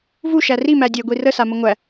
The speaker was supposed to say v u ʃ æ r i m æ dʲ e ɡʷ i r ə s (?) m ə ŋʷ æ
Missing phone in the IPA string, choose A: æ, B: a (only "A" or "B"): B